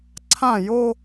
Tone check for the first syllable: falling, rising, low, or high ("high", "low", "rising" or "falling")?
falling